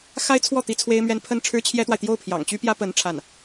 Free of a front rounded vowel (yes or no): no